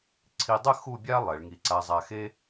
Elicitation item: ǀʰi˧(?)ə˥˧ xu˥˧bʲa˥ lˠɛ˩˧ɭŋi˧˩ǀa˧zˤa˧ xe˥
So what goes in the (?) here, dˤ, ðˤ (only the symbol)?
dˤ